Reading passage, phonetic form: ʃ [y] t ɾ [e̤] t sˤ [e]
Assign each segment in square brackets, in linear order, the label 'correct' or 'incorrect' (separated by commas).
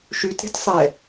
correct, correct, incorrect